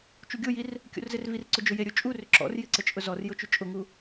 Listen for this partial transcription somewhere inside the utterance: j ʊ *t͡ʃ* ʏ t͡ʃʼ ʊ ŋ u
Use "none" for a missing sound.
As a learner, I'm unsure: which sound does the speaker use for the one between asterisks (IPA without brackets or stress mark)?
t͡ʃ